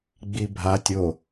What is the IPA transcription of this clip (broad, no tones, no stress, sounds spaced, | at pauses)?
ɡ͡b i bʱ a tʲ o